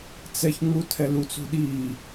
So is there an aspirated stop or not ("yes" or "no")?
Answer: yes